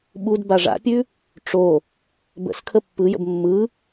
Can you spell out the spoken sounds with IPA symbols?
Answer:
ɓ u d b a ʐ a̰ pʲ ʉ | ʈ͡ʂ o | b ə̰ s kʰ ə pː ɯ j ə̰ b mː ɯ

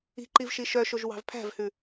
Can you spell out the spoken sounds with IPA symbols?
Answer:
i̤ ǃ i v ʃ i ʃ œ ʃ o ʒ w ɑ̤ v pʰ æ̤ v h ʉ

